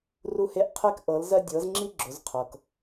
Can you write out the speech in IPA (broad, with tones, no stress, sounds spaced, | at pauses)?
r u˧ h e˧ ʔ qʰ e˧ k ʔ ɤ˩˧ l z ɜ˧ dʲ ɤ˩˧ z ŋ͡ǁ i˧ ɡ͡ǁ ʊ˩˧ z qʰ ɤ˩ k